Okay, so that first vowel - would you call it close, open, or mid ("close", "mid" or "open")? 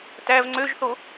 open